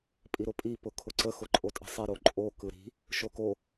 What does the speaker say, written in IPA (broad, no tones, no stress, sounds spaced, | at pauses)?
pʼ i ɾ ʊ pʼ i p ʊ kʰ ʊ ǀ ə x ʊ ǃʼ o tʼ ə̤ sˤ e ɾ o ǃʼ o k ɯ ɾ i̤ | ʃ o k o